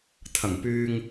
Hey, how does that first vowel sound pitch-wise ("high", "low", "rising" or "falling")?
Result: low